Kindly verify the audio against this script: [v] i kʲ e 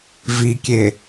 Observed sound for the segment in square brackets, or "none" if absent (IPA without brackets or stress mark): v